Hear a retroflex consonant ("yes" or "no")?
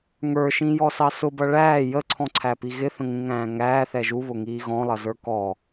yes